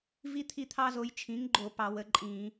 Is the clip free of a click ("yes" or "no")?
no